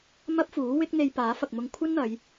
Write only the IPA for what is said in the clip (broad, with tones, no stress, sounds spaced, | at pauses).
m ɐ˥ p̚ f uː˨˥ w ɪ˥ k̚ n̪ e˧ j p aː˨˥ f ɐ˨ k̚ m ʊ˧ ŋ kʷʰ ɐ˥ n n̪ ɐ˨˧ j